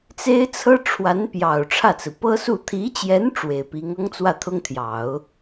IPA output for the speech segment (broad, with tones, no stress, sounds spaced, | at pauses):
t͡s e˥ ɪ̯ t͡sʰ ɤ˥ ʈ͡ʂʰ w a˧˥ n p j ɑ˨˩ ʊ̯ ʈ͡ʂʰ ä˥˩ t͡s ɹ̩˩ p ɤ˥ s u˥˩ t̪ʰ i˧˥ t͡ɕ j ɛ˧˥ n ʈ͡ʂ w e˨˩ ɪ̯ p i˧˥ ŋ ɤ˥ ŋ t͡s w ä˥˩ t̪ʰ ʊ˥ ŋ t̪ʰ j ɑ˨˩˦ ʊ̯